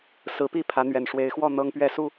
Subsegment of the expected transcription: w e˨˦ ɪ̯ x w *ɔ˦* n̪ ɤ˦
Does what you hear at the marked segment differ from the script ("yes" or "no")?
yes